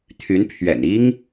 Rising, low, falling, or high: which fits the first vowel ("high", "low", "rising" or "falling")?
rising